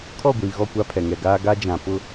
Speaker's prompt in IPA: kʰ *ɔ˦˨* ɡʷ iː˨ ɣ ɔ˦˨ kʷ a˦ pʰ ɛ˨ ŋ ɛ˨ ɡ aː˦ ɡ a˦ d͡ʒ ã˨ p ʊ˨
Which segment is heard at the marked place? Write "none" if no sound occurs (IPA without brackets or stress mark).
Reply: ɔ˦˨